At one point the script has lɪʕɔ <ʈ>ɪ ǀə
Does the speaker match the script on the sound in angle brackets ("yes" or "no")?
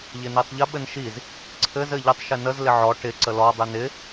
yes